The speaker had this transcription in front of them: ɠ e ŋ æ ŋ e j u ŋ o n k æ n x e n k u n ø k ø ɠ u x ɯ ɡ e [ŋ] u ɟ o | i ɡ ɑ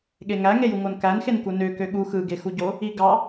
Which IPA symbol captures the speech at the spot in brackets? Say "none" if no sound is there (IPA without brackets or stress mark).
x